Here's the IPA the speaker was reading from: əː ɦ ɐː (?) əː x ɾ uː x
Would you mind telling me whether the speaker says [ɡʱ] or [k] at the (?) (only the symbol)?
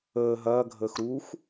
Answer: ɡʱ